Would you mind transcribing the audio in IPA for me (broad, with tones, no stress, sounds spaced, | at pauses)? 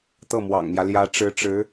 t̪ ɤ˥˩ m w ɑ̰˨˩ ŋ m j ä˦ l j ä˧˥ ʈ͡ʂ ɻ̩˧˥ ʈ͡ʂ ɻ̩˧˥